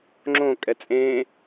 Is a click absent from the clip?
no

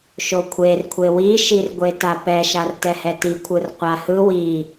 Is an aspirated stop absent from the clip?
no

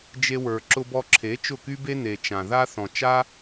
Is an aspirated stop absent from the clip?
no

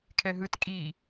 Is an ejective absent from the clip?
no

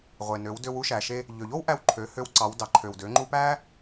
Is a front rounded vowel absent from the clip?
no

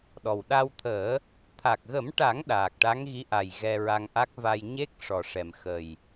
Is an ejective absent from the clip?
yes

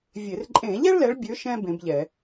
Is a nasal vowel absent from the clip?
no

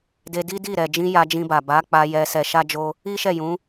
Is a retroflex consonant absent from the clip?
yes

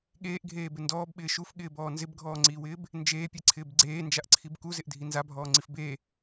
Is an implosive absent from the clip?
no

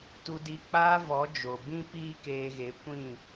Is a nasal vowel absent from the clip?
no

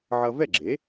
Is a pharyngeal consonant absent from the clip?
no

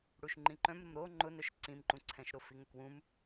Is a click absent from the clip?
no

